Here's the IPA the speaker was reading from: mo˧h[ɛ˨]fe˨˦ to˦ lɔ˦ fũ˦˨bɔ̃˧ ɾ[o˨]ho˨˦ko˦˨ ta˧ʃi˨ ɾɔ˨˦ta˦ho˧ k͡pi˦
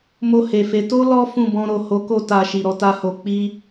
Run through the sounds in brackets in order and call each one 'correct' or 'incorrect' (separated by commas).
incorrect, correct